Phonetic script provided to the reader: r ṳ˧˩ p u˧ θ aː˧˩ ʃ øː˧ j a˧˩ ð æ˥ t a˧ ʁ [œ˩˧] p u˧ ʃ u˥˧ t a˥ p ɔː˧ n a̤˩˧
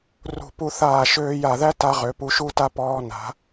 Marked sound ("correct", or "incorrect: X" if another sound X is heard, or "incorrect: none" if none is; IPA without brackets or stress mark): incorrect: ø˩˧